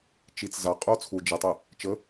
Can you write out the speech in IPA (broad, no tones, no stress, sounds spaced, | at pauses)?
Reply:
t͡ʃ i t͡s z a qʼ u o̯ t͡sʰ u d͡ʒ ə tˤ ə | t͡ʃ ə